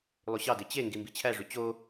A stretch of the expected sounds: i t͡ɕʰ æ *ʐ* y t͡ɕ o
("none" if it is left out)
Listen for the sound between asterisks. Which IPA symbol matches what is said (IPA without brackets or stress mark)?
ʐ